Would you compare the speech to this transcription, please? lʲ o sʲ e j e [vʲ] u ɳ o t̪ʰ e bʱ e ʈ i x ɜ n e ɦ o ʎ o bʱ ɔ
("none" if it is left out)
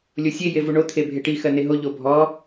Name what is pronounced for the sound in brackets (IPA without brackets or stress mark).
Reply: v